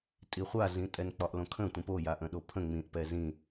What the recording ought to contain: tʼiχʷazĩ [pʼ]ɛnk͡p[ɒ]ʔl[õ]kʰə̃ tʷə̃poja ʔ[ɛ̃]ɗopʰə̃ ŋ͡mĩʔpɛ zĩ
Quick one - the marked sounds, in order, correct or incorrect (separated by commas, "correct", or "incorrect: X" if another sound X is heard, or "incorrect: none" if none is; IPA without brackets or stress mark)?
incorrect: tʼ, correct, correct, incorrect: ə̃